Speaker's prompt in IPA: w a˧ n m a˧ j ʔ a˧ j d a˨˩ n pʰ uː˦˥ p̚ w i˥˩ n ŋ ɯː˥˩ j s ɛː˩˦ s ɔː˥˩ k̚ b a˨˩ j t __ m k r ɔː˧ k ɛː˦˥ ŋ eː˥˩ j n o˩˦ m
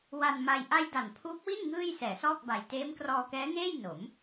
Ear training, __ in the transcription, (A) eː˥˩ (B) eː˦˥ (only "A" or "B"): B